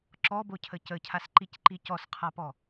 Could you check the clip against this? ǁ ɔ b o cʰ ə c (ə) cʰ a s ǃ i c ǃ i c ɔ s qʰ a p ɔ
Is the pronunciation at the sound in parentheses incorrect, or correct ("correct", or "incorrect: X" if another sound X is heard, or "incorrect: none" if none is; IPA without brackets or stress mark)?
correct